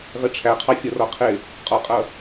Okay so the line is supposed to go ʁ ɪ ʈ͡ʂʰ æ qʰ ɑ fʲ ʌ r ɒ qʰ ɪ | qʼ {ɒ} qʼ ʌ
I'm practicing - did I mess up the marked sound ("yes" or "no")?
no